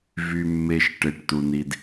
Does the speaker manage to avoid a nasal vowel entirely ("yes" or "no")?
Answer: yes